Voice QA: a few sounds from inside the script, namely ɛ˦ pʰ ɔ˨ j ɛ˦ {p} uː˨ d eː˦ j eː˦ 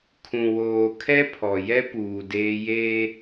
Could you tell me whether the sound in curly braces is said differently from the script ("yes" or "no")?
no